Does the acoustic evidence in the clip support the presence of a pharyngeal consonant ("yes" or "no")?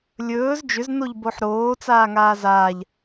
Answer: yes